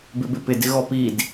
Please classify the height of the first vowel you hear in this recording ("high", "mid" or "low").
high